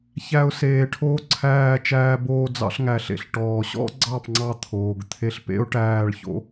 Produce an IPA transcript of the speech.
ç æ˦ ʊ̯ s eː˧ ʈʰ oː˦ ǀʰ æː˦˨ t͡ʃ æː˧ b oː˧ d͡z ɑ̰˧ ɬ ŋ æ˨ ɬ ḛ˨ ɬ ʈ ɔː˨ ɕ ɔ̰˦ ɡ͡ǀ ɑ˦˨ p ŋ͡ǀ ɑ˧ t̪ʰ oː˨ ɡ t̪ʰ e˦ ɬ p ḛ˦ ʊ̯ ʈ æː˦˨ ɭ ç o̰˦

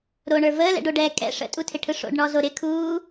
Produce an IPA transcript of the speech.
ɾ o ɳ ə˞ v əː l ɛ̰ ɖ o ɖ ɛː kʼ ɛ̰ ʂ ə̰ tʼ u tʰ ɪ ʈʰ ɯ ʂ o̰ ɖ ɳ ɔ z o ɾ ɪ kʰ uː

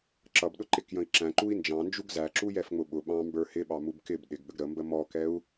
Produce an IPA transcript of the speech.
ǁ ʌ b ɗ ʊ ǃ ɪ k j ə̃ i̯ ǁ æ̃ ǃ u i̯ n d͡ʒ ɑ̃ n d͡ʒ u ɡ z æ ǁ u j ɛ f ŋ͡m ʊ ɓ ʊ ɓ ɑ̃ m b ə˞ h ɪ ɓ ɑ m u b k ɪ b ɗ ɪ ɡ ɠ ə ɡ ɾ ə m b ə m ɔ k ɛ u̯

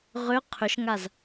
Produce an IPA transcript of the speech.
ʁ ʏ qʰ ʏ ʃ ŋ a z

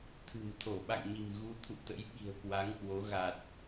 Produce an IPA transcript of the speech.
t̪ʰ ɨ̤˨˩ m t̪ʰ o˧˩ ɓ a̰˧˨ ŋ ɲ i̤˨˩ m ɣ u˨˦ t̪ʰ ṵ˧˨ t̪ ə̰˧˥ j ɓ i̤˨˩ ə̯ k w a˨˦ ŋ k w o˨˦ ɣ a˨˩ t̚

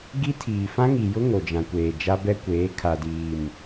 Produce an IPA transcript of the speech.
ɡ i˦ tʰ iː˨ f ã˦ ŋ i˨ j ʊ˦ ŋ o˨ d͡ʒ ã˨ kʷ eː˨ d͡ʒ a˦ b ɛ˦ kʷ eː˨˦ kʰ a˨ d iː˨ m

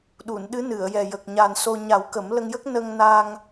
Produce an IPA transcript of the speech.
ɗ u˨˩˨ n ɗ ɨ˧˥ n ɨ˨˩˨ ə̯ j ɛ˨˩ j ə˨˩ k̚ ɲ a˨˩ n s o˧ ɲ a˨˩˦ w k ə˨˩˦ m l ə˧ ŋ j ə˦˥ k̚ n ə˧ ŋ n a˧ ŋ

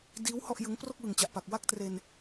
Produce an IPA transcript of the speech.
d iː˦˥ w h ɔ˥˩ ʔ j ɯ˦˥ ŋ p r o˥˩ k̚ w ɯ˨˩ ŋ t͡ɕ a˨˩ ʔ p a˨˩ k̚ w a˥˩ k̚ t r e˧ n

